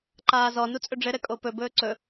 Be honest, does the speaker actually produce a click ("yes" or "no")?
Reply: yes